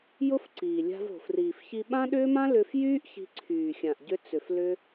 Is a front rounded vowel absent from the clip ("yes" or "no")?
no